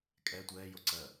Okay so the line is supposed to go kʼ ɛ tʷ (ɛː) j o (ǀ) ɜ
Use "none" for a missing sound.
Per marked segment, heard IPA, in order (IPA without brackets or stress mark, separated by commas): ɛː, ǀ